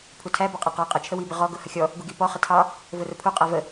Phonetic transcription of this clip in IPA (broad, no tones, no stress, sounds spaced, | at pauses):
pʰ u tʰ æ b ɑ qʼ æ q ɑ qʼ ə t͡ʃʰ ə w i b ə ʁ ɔ ɡ ʊ h ə xʲ ɔ | ɡ u ɡ i p ɔ χ ə tʰ ɑ | v ʊ r ʊ pʰ u qʼ æ v ə